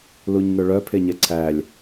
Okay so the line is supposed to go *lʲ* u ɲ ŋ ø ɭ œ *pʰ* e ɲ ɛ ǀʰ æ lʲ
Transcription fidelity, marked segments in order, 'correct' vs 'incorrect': incorrect: l, correct

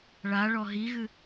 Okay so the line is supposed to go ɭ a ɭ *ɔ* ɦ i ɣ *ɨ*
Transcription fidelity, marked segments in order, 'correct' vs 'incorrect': correct, correct

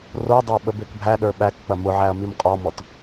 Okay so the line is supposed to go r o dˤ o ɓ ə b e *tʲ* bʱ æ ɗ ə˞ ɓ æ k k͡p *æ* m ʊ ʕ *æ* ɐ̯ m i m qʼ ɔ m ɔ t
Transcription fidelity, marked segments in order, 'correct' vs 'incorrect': incorrect: k, incorrect: ɐ, correct

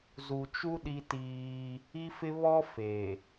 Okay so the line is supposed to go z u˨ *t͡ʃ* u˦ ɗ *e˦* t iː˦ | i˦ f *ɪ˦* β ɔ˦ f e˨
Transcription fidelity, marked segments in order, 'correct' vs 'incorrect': correct, incorrect: i˦, correct

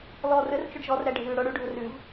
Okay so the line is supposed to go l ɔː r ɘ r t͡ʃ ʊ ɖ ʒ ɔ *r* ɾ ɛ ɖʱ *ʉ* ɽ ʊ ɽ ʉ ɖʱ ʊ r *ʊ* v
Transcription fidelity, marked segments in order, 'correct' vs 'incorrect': correct, incorrect: ʉː, incorrect: ʉ

